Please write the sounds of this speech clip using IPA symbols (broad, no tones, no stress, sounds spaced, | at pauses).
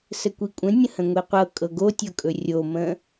s ə kʷ i kʷʼ ə̃ nʲ ə̃ h ə̃ ŋʷ i qʷ ɤ kʼ ɤ ɡ o tʲ ɤ kʼ ɵ rʲ o m ə̃